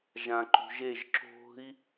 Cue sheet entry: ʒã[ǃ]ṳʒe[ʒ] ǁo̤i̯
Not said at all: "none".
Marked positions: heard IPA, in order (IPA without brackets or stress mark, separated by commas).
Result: ǃ, ʒ